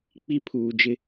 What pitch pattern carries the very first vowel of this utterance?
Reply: high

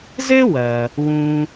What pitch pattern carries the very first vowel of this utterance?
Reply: high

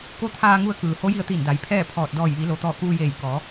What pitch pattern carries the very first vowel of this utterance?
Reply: rising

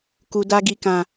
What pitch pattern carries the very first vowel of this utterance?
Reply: low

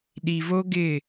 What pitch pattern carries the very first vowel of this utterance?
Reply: low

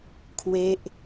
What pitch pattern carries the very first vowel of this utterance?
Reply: falling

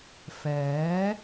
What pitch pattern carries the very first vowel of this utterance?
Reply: rising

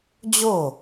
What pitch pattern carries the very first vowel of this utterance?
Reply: falling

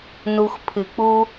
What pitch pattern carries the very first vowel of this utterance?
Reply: low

